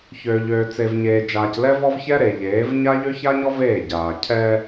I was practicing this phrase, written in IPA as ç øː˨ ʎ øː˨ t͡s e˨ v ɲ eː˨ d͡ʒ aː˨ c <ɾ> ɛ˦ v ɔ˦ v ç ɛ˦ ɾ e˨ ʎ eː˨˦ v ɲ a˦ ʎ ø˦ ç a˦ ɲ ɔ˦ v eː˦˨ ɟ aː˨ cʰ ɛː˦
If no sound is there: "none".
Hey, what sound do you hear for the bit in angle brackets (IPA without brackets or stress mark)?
l